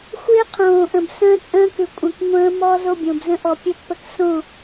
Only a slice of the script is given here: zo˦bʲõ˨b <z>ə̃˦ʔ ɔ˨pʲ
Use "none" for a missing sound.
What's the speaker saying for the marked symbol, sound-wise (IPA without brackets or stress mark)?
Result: z